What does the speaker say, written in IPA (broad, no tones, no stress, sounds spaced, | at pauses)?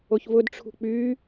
o ç v ʊ d ʈ͡ʂʰ ṳ k͡p yː